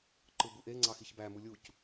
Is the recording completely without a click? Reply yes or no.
no